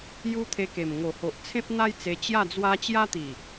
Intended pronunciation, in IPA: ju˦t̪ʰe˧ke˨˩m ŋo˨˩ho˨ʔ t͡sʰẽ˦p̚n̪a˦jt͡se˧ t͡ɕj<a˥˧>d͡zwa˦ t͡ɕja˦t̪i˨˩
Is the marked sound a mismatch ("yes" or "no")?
no